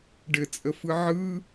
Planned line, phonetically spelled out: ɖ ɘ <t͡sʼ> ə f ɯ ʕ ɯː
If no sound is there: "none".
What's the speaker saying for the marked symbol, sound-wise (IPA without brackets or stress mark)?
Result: t͡sʼ